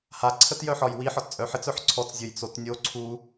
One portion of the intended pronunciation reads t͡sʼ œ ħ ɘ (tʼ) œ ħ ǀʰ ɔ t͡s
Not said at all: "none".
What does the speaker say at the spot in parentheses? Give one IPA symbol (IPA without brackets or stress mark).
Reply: t͡s